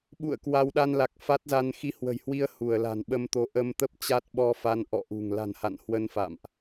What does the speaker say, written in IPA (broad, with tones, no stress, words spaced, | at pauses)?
ɓṵ˧˨ə̯ kwa˧w ɗa˧nla˨˩k̚ fa˦˥t̚za˧n xi˧hwə̤˨˩jhwi˧ə̯ hu˧˩ə̯la̤˨˩nɓə˧mt̪o˨˦ ʔə˧mt̪ə˦˥p̚t͡ɕa˦˥t̚ɓɔ˧ fa˧nʔɔ̰˧˨ʔṳ˨˩ŋ la̤˨˩n ha̰˧˨nhwə˧nfa̰˧˨mʔ